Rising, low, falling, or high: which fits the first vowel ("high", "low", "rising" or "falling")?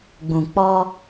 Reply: low